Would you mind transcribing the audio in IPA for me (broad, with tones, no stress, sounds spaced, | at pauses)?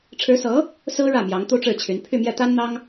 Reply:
ʈ͡ʂʰ ɻ̩˧˥ s ɤ˧˥ | s ɹ̩˥ ɻ ä˥˩ m j ɑ˧˥ ŋ t̪ u˥ ʈ͡ʂ ɻ̩˥˩ t͡ɕʰ y˧˥ n pʰ y˥˧ m j ɛ˥˩ t̪ a˥ n n̪ ɑ˥ ŋ